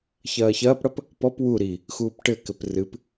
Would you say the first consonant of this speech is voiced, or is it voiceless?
voiceless